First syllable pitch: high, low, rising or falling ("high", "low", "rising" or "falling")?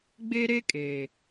high